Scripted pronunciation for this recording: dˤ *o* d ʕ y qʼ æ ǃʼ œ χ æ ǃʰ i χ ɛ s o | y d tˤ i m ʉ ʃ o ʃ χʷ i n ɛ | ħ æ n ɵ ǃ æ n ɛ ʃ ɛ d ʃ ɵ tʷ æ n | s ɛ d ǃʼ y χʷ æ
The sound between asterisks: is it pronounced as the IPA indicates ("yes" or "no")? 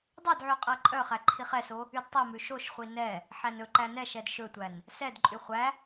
no